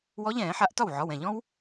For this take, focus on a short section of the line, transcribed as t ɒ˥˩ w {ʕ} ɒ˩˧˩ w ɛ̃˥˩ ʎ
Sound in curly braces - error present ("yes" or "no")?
no